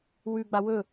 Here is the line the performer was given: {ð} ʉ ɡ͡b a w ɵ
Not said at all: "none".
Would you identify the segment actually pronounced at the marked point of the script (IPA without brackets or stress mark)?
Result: w